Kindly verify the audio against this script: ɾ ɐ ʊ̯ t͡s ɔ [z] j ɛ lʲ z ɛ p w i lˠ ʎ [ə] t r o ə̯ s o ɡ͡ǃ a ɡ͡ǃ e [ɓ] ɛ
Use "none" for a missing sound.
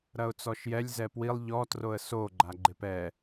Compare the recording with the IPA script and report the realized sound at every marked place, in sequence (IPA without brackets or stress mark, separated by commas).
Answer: ʃ, ɔ, p